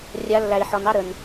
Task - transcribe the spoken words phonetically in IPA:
rʲa˨˦lːæ˨i̯ħɔ˨n ɑ˦ ɾə˨n

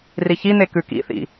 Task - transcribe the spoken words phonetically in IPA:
riçin̪e kʉkḭθḭ

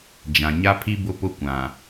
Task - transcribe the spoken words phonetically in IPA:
d͡ʒã˨ ɲa˦pʰi˦ bʊ˦pʊ˦ kʷã˨

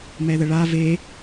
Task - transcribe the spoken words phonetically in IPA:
mɛðəɭa ve

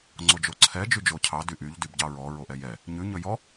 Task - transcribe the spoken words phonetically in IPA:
ŋ͡ǀod͡ʒoǀʰɛ d͡ʒyd͡ʒocʰɑ dyʔyʎ dybɟɑɹɔ ɹoʔɛjɛ | ɲʉ ɲɵjɔ

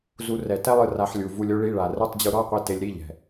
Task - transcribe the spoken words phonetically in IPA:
zu˧rɛ˨˩tɛ˥lˠɯ˧ ra˧ħlʲu˨˩ vu˧lʲo˥ɭi˧˥˧ɭa˨˩ rɯ˧˥˧tˤd͡ʑu˧ɾɔ˧˥˧qʷi˧ te˧lʲɾi˧˥˧ʎɛ̤˨˩

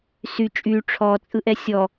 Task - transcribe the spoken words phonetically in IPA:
sy t͡ʃʼy ʈ͡ʂʰɔt͡sʼɯʔɛ sʲɔ

